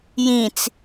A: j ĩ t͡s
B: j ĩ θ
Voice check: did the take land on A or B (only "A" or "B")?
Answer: A